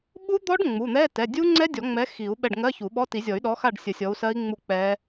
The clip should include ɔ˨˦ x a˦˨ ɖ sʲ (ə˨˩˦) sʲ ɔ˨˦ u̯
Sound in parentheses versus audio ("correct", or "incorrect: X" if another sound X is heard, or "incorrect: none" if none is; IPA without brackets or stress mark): correct